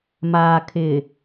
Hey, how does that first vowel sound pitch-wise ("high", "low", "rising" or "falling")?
low